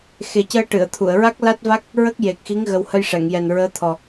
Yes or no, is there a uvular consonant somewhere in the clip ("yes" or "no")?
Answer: no